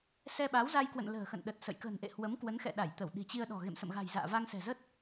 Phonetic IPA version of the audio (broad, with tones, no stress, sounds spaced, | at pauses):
s ɛ˧ ɓ a˨˦ w z a˧ j k w ə̰˧˨ n l ə̤ː˨˩ x ə̰˧˨ n ɗ ə˨˩ t̚ s ə̰˧˨ j k ə̤ː˨˩ n ʔ ḛ˧˨ h w ə˨˦ m k w ə˨˦ n x ɛ̰˧˨ ɗ a˧˩ j t̪ ə˧˩ w ɗ i̤˨˩ t͡ɕ i˧ ə̯ ɗ ɔ̤˨˩ ɣ ḛ˧˨ m s ə̰˧˨ m ɣ a̤˨˩ j z a̰ː˧˨ v a˧ ŋ s ɛ̤˨˩ z ə˦˥ t̚